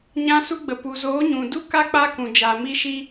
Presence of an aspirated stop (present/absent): absent